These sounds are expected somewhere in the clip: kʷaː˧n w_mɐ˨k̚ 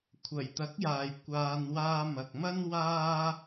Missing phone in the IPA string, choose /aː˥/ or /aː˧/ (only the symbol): aː˧